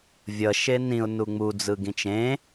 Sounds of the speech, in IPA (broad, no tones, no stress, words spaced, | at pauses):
vʲʌ ʃenĩʊ̯ nuŋ͡mu d͡zɯɡĩt͡ʃẽ